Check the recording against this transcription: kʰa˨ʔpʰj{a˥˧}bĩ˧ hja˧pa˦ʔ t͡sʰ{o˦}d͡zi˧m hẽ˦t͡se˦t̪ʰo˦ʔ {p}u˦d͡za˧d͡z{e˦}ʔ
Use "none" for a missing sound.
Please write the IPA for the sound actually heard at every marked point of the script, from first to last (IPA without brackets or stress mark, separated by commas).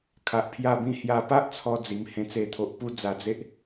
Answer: a˧, ɔ˦, p, e˦